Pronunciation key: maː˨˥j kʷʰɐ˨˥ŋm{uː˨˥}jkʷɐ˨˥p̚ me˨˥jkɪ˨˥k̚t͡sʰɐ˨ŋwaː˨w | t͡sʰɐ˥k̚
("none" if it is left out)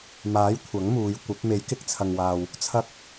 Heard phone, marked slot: uː˨˧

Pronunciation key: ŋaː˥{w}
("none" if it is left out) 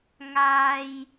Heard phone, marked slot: j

